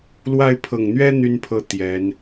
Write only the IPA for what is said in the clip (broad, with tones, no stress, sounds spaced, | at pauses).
l w a˥˩ ɪ̯ pʰ ɤ˨˩ ŋ n̪ ɥ ɛ˥ n̪ y˥ n pʰ ɤ˥˩ t̪ j ɛ˧˥ n